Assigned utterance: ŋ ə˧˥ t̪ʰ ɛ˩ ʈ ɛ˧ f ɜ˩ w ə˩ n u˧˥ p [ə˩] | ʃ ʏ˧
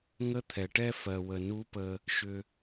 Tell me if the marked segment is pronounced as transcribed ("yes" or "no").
no